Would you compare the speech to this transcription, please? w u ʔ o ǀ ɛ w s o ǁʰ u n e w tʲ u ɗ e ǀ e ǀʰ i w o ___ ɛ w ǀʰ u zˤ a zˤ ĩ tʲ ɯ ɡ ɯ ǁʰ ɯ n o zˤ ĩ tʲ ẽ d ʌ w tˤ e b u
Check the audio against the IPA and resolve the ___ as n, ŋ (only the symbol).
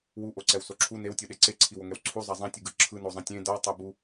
ŋ